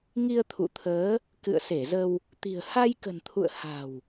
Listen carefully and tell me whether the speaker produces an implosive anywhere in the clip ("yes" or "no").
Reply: no